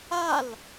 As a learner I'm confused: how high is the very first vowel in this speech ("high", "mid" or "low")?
low